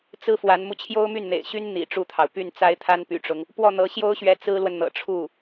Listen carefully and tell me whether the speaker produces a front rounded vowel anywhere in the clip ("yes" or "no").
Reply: yes